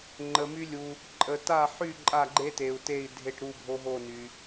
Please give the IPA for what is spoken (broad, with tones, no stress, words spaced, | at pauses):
ŋ͡ǃə˨my˦lʲu˨ | ǃʼə˨ta˦˨ħy˦˨ ǃʼa˦˨ɡ͡ǃe˦te˨u̯te˦˨i̯ dʱe˦˨ʈɾu˦˨bʱo˦ɦo˦˨ ny˨